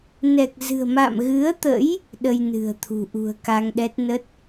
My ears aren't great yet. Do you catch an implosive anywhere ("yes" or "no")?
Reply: yes